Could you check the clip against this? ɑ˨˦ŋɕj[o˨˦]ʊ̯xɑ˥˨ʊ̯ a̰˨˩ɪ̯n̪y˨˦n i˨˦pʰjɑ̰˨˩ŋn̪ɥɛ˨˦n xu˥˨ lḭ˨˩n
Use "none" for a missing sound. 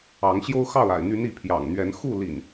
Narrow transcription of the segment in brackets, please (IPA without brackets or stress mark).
o˦